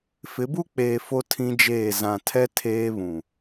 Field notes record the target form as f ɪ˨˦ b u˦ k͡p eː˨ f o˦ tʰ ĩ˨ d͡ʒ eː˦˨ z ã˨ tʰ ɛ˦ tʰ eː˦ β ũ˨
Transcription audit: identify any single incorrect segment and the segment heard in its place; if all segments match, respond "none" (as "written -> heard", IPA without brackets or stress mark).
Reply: ĩ˨ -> ĩ˦